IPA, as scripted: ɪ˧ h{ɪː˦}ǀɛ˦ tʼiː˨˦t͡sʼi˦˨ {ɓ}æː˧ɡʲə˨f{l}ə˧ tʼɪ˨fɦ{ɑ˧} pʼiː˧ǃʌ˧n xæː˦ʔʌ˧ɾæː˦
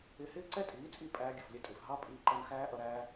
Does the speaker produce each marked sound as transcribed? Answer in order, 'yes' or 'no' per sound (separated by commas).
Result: yes, no, no, no